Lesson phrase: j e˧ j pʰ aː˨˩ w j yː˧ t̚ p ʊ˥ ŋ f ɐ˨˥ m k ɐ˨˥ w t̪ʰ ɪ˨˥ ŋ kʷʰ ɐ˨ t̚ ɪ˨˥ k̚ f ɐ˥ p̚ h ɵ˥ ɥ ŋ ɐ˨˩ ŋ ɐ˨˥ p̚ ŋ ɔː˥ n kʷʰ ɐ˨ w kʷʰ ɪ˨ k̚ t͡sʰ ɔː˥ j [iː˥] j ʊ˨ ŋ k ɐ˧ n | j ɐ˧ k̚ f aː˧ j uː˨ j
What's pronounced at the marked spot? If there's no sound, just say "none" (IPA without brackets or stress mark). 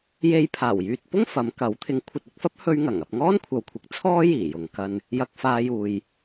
iː˨˩